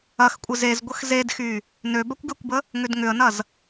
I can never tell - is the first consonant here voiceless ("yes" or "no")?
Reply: yes